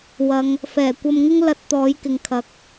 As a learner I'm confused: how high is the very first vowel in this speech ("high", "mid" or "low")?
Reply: low